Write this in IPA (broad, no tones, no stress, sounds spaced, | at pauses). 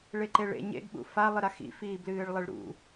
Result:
ɭ e ǃ e ɭ ḛ ɲ ḛ ɡ ɓ ṵ f a lˠ ɨ ɾ a x ḭ f iː b l ɨː ɭ lˠ e ɭ ɾ ṵ